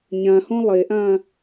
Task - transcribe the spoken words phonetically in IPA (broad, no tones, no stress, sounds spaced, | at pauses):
ɲ ã h õ lˠ e ʔ ã